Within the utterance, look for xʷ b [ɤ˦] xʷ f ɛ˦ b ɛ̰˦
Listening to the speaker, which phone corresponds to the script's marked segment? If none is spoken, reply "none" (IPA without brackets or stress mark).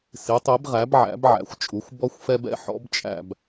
ɔ˦